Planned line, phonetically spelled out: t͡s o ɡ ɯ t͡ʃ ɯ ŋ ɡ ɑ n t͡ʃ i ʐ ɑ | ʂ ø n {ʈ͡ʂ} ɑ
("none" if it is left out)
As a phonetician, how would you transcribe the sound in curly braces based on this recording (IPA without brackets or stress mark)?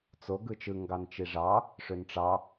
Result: ʈ͡ʂ